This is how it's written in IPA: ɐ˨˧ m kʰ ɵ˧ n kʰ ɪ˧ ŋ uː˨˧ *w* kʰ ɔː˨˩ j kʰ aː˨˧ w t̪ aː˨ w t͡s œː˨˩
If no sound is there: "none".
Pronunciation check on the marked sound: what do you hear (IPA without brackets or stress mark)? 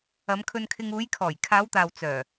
j